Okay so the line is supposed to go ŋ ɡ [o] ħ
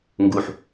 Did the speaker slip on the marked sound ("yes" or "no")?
yes